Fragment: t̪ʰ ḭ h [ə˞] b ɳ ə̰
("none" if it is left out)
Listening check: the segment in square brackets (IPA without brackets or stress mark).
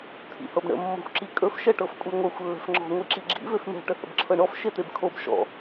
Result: ɤ